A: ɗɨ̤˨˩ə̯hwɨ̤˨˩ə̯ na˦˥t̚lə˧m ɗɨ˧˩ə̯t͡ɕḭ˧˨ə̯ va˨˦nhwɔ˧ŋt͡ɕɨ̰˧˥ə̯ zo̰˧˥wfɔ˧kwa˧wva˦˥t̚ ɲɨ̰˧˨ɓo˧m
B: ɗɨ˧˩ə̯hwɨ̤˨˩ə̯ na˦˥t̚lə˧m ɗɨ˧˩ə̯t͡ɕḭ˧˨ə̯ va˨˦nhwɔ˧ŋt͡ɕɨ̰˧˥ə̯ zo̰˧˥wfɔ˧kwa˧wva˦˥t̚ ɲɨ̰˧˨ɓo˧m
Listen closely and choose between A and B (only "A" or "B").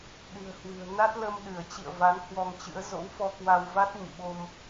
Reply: A